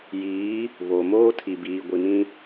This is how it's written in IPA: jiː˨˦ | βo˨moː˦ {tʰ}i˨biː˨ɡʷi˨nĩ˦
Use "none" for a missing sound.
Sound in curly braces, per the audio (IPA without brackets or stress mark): tʰ